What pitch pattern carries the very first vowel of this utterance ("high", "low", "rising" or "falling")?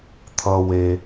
low